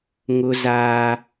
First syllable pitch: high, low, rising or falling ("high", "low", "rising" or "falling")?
high